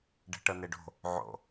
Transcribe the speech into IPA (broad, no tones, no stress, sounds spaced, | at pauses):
ɖ ɛ̤ ʈ ɤ n e ɖ o̤ | ʕ o̰